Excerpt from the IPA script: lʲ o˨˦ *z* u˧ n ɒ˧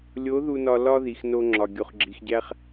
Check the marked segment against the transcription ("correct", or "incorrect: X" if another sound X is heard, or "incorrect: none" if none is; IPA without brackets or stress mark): incorrect: ð